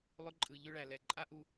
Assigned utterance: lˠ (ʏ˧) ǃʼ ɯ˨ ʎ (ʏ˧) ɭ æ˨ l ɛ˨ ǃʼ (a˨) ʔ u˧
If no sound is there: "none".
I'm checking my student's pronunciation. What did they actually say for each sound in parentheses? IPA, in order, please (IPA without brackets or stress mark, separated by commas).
ʏ˧, ʏ˧, a˦